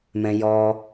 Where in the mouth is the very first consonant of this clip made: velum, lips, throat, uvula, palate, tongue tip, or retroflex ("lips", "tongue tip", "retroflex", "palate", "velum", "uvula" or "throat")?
lips